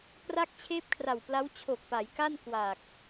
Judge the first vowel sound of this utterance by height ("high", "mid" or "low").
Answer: low